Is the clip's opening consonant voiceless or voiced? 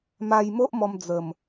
voiced